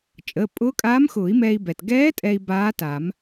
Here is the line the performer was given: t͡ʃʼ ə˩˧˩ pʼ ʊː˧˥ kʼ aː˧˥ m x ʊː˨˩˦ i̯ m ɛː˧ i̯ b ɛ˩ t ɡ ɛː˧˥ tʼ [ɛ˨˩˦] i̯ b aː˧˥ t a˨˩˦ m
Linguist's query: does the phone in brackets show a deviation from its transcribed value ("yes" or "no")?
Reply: yes